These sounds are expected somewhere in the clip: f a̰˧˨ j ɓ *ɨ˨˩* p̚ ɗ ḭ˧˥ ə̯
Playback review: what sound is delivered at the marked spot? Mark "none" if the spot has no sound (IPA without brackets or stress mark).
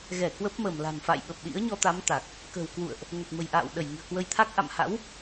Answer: ə˨˩